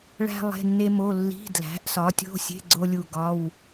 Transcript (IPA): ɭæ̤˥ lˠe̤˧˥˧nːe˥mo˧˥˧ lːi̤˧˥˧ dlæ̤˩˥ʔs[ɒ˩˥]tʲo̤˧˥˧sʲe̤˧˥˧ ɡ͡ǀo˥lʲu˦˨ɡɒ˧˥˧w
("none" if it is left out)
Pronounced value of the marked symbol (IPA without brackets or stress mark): ɒ˩˥